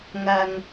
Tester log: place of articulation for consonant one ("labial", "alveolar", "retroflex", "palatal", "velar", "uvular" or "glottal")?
velar